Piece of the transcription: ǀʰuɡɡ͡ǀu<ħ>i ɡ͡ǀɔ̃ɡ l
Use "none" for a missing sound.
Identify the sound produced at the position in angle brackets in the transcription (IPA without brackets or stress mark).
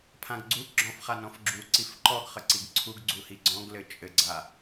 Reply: h